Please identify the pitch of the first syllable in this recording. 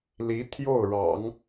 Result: rising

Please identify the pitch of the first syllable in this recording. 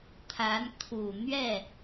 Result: rising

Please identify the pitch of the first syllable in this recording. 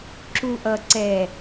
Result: low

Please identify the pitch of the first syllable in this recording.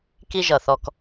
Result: high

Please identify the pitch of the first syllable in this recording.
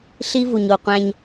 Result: high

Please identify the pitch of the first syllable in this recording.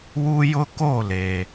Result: high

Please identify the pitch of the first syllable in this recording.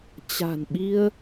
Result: low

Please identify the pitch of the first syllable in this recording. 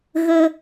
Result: high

